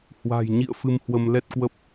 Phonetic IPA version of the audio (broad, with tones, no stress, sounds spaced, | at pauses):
h w a̤˨˩ j ɲ ḭ˧˨ ə̯ f ɨ˧ m h w ə˧ m l ɛ˦˥ t̚ k w ə˦˥ p̚